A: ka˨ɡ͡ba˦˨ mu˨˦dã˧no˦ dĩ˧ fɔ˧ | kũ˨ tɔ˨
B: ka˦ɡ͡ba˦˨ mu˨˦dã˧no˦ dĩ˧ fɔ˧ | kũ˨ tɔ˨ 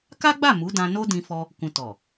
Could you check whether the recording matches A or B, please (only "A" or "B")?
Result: B